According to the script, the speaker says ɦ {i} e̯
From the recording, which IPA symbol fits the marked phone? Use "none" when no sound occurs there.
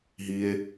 i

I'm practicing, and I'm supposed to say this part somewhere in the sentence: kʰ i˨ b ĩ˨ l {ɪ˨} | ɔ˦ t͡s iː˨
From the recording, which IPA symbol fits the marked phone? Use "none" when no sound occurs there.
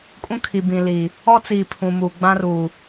i˨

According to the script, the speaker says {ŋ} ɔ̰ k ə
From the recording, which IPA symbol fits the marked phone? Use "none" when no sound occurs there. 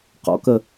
q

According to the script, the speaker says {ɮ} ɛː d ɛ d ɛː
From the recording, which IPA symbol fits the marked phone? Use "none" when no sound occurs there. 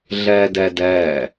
ɮ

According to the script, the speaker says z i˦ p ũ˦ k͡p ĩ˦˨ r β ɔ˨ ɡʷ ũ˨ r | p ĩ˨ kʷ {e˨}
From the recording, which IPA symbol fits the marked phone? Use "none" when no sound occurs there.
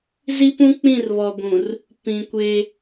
e˦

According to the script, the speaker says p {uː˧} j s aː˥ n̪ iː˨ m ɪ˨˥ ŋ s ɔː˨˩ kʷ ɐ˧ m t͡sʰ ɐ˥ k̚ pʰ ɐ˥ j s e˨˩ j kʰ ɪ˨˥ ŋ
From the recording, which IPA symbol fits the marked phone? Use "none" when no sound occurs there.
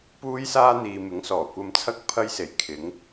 uː˥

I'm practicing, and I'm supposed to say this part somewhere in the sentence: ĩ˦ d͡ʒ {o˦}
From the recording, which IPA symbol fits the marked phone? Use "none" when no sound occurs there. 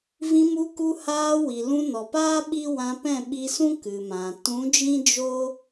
o˦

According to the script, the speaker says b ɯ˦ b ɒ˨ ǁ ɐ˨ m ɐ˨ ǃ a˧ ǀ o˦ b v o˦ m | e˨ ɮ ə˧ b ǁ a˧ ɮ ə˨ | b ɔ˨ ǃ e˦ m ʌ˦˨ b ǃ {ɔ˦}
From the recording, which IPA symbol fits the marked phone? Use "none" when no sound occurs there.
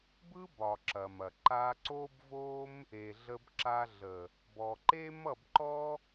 ɔ˦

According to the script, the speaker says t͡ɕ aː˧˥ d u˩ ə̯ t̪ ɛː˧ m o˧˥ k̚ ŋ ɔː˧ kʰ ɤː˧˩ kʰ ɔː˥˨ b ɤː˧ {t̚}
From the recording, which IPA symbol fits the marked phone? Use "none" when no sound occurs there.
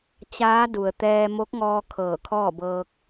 k̚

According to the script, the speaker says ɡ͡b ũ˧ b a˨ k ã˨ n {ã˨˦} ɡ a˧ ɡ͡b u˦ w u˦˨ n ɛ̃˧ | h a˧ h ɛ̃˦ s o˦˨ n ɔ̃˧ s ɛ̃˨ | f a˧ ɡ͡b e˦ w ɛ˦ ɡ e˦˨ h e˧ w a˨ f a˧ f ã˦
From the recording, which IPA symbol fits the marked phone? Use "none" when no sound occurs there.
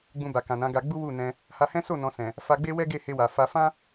ã˨˦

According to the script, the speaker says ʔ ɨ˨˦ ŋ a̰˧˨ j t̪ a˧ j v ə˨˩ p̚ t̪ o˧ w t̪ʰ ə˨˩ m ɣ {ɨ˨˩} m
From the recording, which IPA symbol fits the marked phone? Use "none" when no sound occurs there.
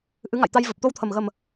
ə˨˩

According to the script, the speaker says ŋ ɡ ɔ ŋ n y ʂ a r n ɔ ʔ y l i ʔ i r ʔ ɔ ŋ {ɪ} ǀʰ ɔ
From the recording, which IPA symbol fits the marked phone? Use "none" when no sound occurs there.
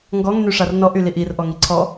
i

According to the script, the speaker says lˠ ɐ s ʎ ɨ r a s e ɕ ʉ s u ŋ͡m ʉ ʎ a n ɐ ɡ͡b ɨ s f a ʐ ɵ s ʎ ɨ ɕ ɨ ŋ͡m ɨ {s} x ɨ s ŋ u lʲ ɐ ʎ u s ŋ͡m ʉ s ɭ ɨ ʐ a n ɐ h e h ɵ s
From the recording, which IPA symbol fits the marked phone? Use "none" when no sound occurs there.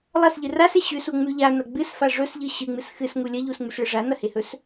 s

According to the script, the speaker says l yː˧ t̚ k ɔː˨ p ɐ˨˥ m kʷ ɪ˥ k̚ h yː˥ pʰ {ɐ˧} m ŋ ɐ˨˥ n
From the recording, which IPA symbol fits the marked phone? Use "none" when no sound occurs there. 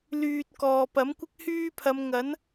ɐ˨˧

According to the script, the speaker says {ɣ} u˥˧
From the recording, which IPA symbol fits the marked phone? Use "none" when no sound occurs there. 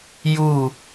j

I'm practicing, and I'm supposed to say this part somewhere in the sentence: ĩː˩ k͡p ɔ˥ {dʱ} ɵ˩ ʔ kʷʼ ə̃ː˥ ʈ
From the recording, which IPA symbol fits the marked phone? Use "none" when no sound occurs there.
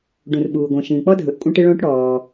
dʱ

